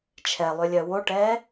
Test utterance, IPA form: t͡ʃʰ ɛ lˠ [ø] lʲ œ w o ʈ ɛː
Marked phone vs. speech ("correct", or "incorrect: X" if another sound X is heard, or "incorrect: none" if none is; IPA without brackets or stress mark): correct